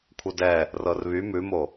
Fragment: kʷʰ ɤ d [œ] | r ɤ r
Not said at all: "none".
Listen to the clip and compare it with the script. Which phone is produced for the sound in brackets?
ɛ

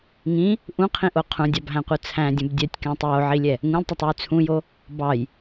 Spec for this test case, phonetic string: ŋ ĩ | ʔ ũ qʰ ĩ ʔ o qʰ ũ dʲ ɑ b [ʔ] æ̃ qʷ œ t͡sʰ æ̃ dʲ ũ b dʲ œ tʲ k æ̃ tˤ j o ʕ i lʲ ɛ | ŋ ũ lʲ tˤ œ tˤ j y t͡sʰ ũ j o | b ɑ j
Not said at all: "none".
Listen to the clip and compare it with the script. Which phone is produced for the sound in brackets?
ɦ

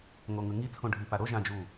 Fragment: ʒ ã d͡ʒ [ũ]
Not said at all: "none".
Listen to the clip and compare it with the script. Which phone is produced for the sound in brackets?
u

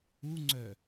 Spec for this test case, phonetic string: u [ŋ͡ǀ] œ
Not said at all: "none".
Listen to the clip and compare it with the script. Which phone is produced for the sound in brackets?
ŋ͡ǀ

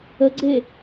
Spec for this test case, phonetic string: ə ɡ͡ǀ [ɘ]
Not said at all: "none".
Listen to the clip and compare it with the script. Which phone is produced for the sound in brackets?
e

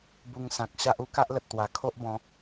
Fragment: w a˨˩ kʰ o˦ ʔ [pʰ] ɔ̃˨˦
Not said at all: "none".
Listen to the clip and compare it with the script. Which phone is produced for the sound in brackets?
b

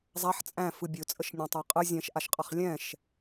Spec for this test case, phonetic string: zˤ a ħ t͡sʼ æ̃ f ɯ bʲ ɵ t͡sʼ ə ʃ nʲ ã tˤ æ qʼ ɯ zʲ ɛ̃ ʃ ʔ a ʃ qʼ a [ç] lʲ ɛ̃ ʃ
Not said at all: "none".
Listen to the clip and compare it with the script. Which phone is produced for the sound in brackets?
χ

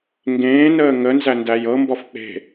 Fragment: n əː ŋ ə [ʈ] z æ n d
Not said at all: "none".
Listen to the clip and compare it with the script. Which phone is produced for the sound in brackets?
n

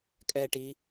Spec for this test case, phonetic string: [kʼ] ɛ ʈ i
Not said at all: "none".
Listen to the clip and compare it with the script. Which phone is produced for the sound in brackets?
kʼ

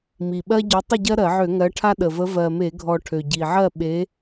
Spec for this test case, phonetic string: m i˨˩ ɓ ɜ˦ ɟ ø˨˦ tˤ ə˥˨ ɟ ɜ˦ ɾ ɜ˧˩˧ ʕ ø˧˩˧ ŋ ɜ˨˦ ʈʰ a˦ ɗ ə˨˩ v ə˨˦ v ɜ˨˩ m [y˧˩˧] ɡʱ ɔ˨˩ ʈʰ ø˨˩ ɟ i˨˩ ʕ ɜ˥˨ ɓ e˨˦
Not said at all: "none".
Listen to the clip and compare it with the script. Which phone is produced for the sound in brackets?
e˧˩˧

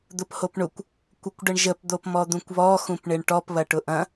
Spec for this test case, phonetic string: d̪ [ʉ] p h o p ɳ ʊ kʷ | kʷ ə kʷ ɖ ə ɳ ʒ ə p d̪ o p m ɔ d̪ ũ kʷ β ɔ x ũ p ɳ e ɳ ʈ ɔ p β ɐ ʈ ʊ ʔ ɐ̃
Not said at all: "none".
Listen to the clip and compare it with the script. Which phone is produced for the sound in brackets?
ʊ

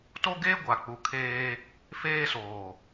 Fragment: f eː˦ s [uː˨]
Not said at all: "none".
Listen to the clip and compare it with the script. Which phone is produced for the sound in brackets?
oː˨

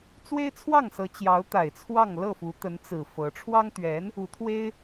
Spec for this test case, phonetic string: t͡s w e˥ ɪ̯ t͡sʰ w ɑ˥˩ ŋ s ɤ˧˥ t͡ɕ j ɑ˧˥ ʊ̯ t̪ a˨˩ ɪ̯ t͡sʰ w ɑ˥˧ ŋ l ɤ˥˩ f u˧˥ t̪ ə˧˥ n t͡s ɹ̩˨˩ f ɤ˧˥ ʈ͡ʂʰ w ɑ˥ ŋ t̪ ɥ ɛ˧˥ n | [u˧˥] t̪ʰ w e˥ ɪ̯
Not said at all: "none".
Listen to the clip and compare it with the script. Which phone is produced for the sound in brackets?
u˧˥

